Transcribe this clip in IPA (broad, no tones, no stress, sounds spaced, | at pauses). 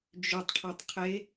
d͡ʒ ʏ tˤ ʈʰ a tˤ qʰ e